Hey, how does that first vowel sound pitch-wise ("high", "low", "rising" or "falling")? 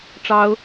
high